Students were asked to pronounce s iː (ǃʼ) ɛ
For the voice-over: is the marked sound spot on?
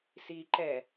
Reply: no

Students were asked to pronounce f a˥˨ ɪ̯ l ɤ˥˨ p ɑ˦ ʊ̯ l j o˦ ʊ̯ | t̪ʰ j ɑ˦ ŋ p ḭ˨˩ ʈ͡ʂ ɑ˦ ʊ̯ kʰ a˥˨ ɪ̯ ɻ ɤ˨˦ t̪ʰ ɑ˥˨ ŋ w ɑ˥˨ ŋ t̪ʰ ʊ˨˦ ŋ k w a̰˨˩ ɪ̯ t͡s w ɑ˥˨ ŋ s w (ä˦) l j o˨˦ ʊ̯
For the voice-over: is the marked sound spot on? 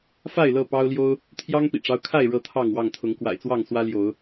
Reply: yes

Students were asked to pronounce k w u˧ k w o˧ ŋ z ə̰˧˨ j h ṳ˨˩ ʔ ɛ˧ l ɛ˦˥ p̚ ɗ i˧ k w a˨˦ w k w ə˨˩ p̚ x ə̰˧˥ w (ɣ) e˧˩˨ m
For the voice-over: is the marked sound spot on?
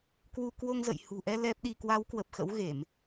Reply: yes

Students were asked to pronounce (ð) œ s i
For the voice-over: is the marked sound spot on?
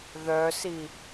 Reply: yes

